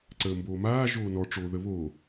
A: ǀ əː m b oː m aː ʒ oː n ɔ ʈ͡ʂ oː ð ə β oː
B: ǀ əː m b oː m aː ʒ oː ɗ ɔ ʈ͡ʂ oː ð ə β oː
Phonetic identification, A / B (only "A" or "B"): A